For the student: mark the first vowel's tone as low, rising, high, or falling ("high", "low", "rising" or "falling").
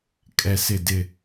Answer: falling